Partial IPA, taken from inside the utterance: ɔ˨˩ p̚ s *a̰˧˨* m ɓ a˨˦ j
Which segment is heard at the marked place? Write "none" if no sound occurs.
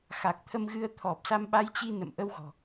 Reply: a˧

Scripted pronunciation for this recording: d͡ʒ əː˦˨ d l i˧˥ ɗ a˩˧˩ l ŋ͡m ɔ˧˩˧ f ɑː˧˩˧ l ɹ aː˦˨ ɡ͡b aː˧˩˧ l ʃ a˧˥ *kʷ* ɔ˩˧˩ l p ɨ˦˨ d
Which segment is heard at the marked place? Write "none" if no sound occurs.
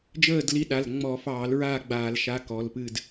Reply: k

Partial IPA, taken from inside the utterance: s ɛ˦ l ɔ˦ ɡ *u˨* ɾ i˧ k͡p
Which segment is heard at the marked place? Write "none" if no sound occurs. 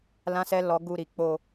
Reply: u˦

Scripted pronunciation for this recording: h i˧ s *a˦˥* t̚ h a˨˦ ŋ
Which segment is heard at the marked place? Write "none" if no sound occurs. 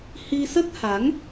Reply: ə˦˥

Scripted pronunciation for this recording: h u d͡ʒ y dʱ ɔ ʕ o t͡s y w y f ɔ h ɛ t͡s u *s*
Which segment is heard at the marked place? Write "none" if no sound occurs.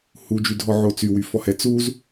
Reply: z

